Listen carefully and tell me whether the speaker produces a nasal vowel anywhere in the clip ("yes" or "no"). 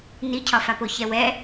no